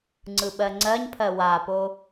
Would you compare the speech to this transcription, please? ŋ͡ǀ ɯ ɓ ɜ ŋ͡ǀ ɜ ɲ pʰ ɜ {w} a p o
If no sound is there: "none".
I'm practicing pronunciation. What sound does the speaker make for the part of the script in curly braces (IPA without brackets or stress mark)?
w